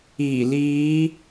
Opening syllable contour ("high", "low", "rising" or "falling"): low